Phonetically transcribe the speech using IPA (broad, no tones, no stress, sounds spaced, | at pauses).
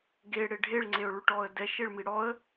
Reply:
ɡ e ɽ e ɖʱ e ɭ ŋ͡ǀ e ʊ̯ ɭ y ʈ ɔ ə̯ d ɛ ʃ e ɭ m i ɽ ɔ ə̯